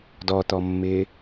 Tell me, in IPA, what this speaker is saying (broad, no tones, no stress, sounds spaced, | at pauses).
d ɔ t̪ ɔ mː ɪː